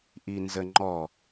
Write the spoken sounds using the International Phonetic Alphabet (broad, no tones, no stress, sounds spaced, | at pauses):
ʔ i n z ə ŋ͡ǃ ɔ